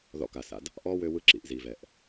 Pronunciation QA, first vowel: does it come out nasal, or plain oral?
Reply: oral